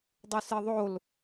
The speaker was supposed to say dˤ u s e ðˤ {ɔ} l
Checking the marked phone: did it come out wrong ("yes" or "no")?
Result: yes